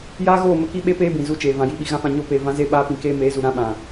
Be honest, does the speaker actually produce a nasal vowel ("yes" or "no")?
yes